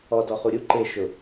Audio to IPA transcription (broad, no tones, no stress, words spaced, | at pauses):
ɔ dɔχuɾʲu ǃe ʃʊ